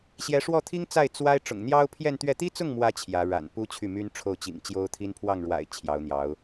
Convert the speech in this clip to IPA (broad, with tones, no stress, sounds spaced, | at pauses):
ɕ j ɛ˧˥ ʂ w ɔ˥˩ t̪ʰ i˥ ŋ t͡s a˥˩ ɪ̯ t͡s w a˥ ɪ̯ ʈ͡ʂ ʊ̰˨˩ ŋ n̪ j ɑ˥ ʊ̯ pʰ j ɛ˥˧ n t̪ ɥ ɛ˥˩ t̪ i˥ t͡s ʊ˥˩ ŋ m w ä˧˥ t͡ɕʰ j ä˧˥ ɻ a̰˨˩ n p u˥ t͡ɕʰ y˥˩ m y˥ n ʈ͡ʂʰ o˥˩ ʊ̯ t͡ɕ ḭ˨˩ ŋ t͡ɕ j o˥ ʊ̯ t̪ʰ i˥ n pʰ w ɑ˥˩ ŋ ɻ w a̰˨˩ ɪ̯ t͡ɕʰ j ɑ˧˥ ʊ̯ n̪ j ɑ˧˥ ʊ̯